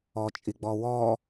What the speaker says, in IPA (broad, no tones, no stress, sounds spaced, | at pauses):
ɔ t͡ʃʼ i ɡ͡b ɔ w ɔː